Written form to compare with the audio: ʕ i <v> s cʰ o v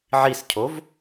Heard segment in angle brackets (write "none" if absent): none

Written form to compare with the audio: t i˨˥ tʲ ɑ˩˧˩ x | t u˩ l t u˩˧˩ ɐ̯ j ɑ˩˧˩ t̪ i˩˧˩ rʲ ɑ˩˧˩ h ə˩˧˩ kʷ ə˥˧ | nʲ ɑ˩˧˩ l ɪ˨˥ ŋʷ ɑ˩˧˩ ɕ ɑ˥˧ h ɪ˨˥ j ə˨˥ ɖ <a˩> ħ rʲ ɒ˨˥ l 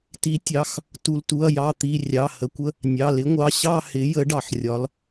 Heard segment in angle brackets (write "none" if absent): ɑ˩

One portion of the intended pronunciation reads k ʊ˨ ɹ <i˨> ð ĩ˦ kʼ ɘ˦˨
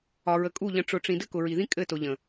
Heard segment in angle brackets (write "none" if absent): i˨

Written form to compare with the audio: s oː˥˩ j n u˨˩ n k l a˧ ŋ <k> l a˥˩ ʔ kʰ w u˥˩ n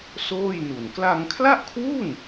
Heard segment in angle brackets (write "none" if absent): kʰ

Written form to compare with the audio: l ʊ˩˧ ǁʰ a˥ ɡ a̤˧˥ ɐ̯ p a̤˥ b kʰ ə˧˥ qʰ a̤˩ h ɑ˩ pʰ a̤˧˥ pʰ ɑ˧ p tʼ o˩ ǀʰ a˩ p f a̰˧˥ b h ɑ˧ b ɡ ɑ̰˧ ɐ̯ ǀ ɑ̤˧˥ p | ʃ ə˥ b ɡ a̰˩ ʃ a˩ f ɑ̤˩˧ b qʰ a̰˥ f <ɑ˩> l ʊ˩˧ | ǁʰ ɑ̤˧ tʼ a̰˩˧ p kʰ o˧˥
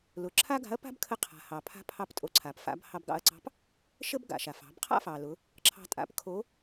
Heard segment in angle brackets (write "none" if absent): ɑ˩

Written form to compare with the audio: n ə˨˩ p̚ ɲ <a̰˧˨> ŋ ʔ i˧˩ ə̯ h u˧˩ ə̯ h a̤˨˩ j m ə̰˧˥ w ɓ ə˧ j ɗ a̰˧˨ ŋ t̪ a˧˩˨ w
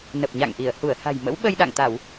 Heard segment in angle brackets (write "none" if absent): a̰˧˨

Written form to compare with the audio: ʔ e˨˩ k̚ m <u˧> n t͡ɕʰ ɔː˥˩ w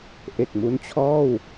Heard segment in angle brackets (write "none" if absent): u˦˥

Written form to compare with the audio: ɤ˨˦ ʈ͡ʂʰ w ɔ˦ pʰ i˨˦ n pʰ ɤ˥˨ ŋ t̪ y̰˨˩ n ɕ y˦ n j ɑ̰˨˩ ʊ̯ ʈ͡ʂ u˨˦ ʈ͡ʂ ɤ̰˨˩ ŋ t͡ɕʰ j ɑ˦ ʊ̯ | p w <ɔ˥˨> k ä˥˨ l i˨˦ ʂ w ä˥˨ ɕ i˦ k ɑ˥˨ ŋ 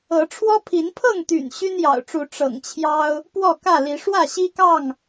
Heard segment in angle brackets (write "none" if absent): ɔ˥˨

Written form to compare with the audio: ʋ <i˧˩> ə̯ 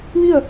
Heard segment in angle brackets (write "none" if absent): i˥˨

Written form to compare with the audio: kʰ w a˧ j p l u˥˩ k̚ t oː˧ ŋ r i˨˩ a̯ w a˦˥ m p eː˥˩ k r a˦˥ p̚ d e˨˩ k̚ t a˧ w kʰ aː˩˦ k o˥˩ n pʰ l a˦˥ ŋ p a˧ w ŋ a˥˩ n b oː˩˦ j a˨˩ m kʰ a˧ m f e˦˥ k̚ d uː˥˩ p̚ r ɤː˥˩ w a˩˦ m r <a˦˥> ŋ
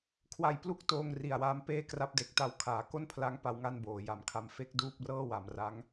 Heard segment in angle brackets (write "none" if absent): a˦˥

